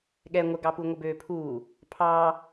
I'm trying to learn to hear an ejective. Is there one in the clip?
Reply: no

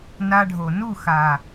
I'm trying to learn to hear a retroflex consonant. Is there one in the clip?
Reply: yes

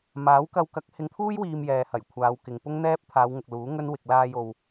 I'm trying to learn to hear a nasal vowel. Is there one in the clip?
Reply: no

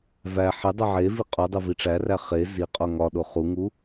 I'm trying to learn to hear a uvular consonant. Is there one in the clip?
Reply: yes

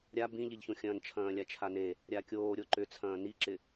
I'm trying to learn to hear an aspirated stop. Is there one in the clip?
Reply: yes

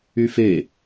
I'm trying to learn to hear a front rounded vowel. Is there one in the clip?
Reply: yes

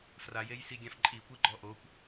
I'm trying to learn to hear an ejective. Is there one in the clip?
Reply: yes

